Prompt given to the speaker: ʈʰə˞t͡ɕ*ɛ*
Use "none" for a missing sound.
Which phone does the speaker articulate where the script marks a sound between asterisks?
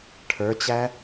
æ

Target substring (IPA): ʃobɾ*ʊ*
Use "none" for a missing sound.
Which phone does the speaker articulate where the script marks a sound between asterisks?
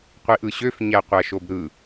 ɯ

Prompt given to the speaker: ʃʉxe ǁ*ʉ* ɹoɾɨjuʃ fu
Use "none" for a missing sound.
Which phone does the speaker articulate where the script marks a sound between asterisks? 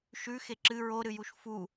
ɨ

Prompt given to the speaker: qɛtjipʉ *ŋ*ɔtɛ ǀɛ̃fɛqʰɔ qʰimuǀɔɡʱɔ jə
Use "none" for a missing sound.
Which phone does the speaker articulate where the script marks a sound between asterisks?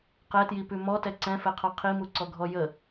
m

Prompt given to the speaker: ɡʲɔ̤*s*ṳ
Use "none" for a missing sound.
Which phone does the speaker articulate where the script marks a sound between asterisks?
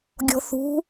θ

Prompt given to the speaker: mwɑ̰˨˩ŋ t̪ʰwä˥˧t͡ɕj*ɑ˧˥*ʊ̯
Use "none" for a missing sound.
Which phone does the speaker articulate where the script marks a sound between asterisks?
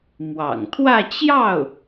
ɑ˥˩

